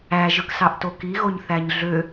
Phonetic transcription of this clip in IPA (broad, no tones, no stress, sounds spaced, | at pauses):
æ ʒ ɯ k s ɑ ʔ t o k i ɣ o ɲ θ æ ɲ ɮ ø